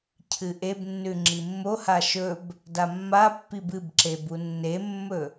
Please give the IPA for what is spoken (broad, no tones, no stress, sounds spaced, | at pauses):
cʰ ɨ ʔ e b nː ʉ ŋ͡ǁ i mː o h a ʃ ɵ b | d a mː a pː i b ɨ b ǁ e b u nː e mː ɵ